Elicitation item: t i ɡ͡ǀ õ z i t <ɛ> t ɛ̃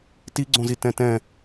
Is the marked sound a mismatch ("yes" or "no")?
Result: yes